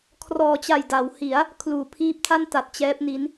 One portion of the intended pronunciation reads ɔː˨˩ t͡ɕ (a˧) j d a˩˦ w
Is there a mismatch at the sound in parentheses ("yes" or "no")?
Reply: yes